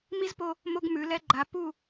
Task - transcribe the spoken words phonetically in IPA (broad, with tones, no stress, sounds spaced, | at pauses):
m i˦ z p o˧ | m o˦ ɡ m ʉ˨˦ l ɛ˦ ɡ͡ǃ a˨˦ p u˦˨